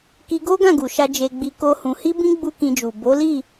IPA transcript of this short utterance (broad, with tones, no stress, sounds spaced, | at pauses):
k i˧ ɡ o˦ ɡ ã˦˨ ɡ u˨ ʃ a˧ d͡ʒ e˧ ɡ͡b i˧ k o˦ h ũ˧ h i˦ b ĩ˦ ɡ͡b u˦ k ĩ˧ d͡ʒ u˨ b o˨˦ l i˦˨